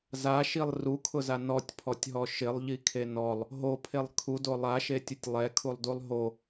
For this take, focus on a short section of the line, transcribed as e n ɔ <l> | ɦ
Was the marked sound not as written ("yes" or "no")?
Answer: yes